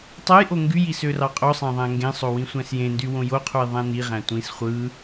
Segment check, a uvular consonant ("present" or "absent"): present